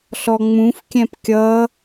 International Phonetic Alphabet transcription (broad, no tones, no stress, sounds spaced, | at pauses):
ɬ ɔ ŋ͡m ũ f kʲ ɛ̃ p kʲ ʌ